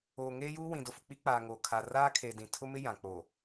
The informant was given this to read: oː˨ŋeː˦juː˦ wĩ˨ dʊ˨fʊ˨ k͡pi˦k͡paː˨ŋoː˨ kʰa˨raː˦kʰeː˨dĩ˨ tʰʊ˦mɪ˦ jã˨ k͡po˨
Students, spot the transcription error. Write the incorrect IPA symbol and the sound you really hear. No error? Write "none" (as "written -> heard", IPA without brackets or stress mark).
none